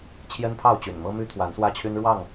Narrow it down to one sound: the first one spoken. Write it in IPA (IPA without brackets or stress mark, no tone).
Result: t͡ɕʰ